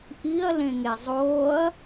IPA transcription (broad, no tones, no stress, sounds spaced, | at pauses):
ʔ i ɐ̯ l ẽ ŋ e zˤ oː ɐ̯